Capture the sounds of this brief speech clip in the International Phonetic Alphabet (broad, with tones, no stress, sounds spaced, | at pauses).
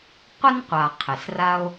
qʷ ə˦ n qʷ a˨ qʰ ɪ˨ s r a˦ o̯